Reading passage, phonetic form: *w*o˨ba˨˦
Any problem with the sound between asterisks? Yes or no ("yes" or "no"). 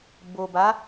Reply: yes